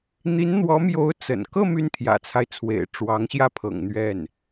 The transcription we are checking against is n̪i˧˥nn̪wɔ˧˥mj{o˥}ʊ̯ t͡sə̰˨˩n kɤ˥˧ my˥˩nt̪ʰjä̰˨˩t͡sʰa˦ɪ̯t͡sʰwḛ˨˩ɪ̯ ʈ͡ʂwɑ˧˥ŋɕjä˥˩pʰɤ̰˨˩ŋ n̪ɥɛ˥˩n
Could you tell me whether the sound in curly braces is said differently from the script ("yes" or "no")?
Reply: yes